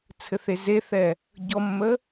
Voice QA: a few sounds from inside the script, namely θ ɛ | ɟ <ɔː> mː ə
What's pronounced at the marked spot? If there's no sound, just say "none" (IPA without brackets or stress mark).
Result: ɔ